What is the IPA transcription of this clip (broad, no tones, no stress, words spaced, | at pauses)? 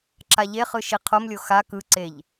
ǁaʎeχɯ ʃiqʰomlʲo xa kɯǀeʎ